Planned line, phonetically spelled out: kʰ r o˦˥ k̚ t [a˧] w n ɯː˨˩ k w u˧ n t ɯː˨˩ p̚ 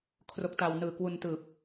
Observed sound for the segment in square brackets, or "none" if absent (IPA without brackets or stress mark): a˧